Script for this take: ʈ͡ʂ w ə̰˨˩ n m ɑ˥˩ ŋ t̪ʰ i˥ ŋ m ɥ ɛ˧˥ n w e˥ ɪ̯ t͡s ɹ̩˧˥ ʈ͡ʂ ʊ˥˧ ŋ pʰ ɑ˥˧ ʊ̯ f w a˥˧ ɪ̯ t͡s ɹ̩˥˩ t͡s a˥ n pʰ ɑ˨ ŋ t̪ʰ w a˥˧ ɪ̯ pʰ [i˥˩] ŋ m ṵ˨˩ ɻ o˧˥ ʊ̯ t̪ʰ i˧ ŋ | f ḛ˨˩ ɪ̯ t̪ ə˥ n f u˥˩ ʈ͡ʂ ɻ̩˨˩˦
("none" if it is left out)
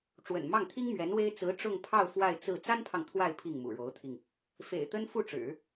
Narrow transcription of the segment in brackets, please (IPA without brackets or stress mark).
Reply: i˥˩